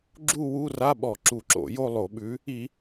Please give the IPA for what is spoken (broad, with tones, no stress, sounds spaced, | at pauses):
ɡ͡ǁ u˥˧ w u˧˥˧ r a˧˥˧ ɓ ɔ˧˩˧ ǁ u˧˩˧ ǁ o̰˧˩˧ j o˥˧ lˠ o˧˩˧ ɓ ʉ˨˥ | i˧˩˧